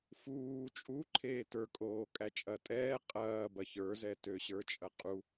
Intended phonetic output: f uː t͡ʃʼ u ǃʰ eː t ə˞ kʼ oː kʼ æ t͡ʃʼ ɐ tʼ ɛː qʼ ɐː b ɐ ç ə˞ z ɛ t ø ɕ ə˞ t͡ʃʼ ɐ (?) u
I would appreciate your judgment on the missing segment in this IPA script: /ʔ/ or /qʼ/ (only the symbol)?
qʼ